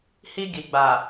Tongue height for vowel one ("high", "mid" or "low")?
high